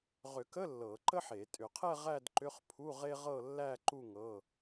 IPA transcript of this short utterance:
ʁ ʏ˨˩˦ k ə˧˥˧ lː ɤ˨˩˦ ǃ ə˥ ħ e˨˩˦ tʼ ʏ˨˩˦ qʰ ɛ˥˧ ʁ æ˥˧ d ǃ ʏ˧˥˧ χ pʰ u˧˥˧ ʁ e˥ ʁ ɤ˥˧ lː æ˥˧ ǃ u˥˧ ŋ ɤ˧˥˧

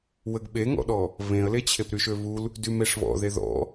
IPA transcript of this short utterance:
w ə ɡ ɓ e ŋ ɔ̰ ɗ ɔ | β ẽ ə̯ l e t͡ɕʰ e p ɾ y ʃ ø β u l | d y m e ʂ β ɔ̰ ð e ð ɔ̰

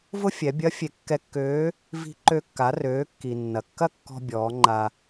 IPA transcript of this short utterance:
v ʊ˥ fʲ ɛ˩˧ bʲ ɐ˧˥ fʲ e˩ kː ɛ˧ kː øː˧˥ | v i̤˧ ǃ ø˧ kː a˩˧ r øː˩˧ kː i˩ nː ɐ˩ kː ɐ˥ kː ɔ̤˧ bʲ ɔː˩˧ ŋ͡ǃ a˧

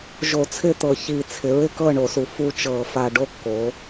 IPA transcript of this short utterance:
ʒ o˧˩˧ t͡sʰ ɪ˥˨ t̪ ɤ˨˩ ç i˨˩ t͡sʰ ɪ˩˧ ɹ ɪ˥˨ k ɤ˥˨ ɳ o˧˩˧ s u˨˩ f u˥˨ t͡ʃ ɤ˧˩˧ f a˨˩ ɖ o˦ kː o˩˧

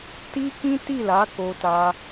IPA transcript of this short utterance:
t i˦ k ĩ˦ t i˦˨ l a˨˦ k o˧ t a˧

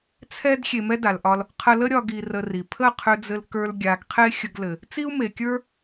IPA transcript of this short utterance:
t͡sʰ ɛ˦ d xʲ e˧ m ɛ˦ d a˨ l ʔ ɒ˧ l | qʰ ə˧ l ə˦ ɾʲ ɒ˦ ɡ i˧ r ə˧ r i˨ pʰ ə˦˨ qʰ ʏ˧ d͡z ɘ˧ l k ə˞˧ l ɡʲ a˨ ɡ qʰ e˦ xʲ ə˧ ɡ l ɘ˨ | t͡s i˦ u̯ m e˨ kʲ ə˞˦

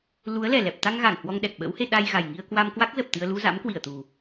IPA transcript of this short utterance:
l u˨˦ ə̯ l ɛ˨˩ l ɛ˨˩ p̚ t̪ a˧ ŋ ɣ a˧˩ ŋ h w ɔ˧ ŋ ɗ ɛ˨˩ k̚ ɓ ə̰˧˥ w h e˧ ɗ a˧ j ɣ a˨˩ j ŋ i˧ ə̯ k w a˧ m k w a˦˥ k̚ z ə˨˩ p̚ t̪ ɨ˧ ə̯ l u˧ z a̰˧˥ m k w i˧˩ ə̯ t̪ u˨˩

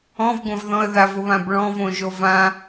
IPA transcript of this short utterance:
ɔ̃ v ɡʷ ã v ð ɔ̃ ə̯ ð a v ʊ β ã b ɭ ɔ̃ v õ ʒ o v ã

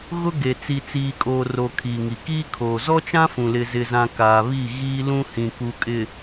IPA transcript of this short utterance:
ɣ ʊ˦ ɡ e˨ t͡s i˨ t͡s iː˨ kʼ oː˨ r o˨ kʰ iː˨ ŋ i˨ k iː˦ kʰ oː˨ z ɔ˦ t͡ʃ ã˦ f ũ˨ l ɪ˦ z ɪ˦ z ã˦ k aː˨ β i˦˨ ɣ iː˦ l ũ˦ h ĩ˨ k u˨ kʼ ɪ˨

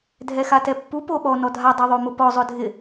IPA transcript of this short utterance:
dʱ ɛ x a t ɛ pː u p o ɓ ɔ n ɔ dʱ a dˤ u ðˤ o m ʊ p ɔ zˤ ʊ dʱ ɪ

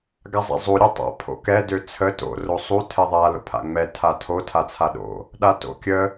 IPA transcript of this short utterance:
ɡ a zˤ a̰ zˤ u ɾʲ ɔ tˤ a̰ pʰ o̰ k ɛ d ø t͡sʰ ə t o̰ r o sˤ u tʰ ɛ ðˤ a l o̰ pʰ a̰ ŋ͡m ɛ tʰ a tʰ o tʰ a t͡sʰ a ɗ o̰ | ɗ a t o̰ kʲ ə

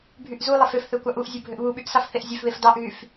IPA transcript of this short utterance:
bʱ y ʔ z u lˠ e f ø f θ ø kʷ ɑ ʔ u ʔ zʲ u bʱ ø ʔ β u ɓ y ʔ s ɑ f θ e ʔ zʲ ø f β e f d ɑ ʔ ɣ y f

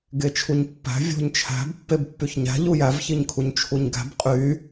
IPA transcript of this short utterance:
ɡ e t͡ʃʰ u ɲ pː æ̤ vʲ o̤ ɲ t͡ʃʰ æ̤ b pː e b pː y ç ɲ æ̤ ʎ u j æ v ç i ɲ kʰ u ɲ t͡ʃʰ u ɲ ɡ æ̤ b qʼ y

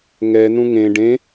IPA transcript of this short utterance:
ŋ ɛ n ũ ŋ ẽ ɖ ẽ

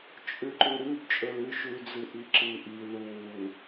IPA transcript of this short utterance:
t͡ʃʼ ʉ ǃ ʉ ɾ ʉ b t͡ʃʼ ɵ l ʉ ʃ ʉ d͡z ɨ ʔ i ǁ ɨ ʔ i ð u w u

